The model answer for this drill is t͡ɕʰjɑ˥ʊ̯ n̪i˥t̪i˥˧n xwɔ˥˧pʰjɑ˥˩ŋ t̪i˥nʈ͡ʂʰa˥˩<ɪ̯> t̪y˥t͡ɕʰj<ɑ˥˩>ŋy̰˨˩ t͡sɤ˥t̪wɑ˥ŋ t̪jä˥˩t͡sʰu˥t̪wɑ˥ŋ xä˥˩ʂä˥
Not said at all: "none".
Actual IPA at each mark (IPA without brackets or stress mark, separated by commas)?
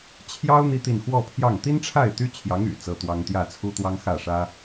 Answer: ɪ̯, ɑ˧˥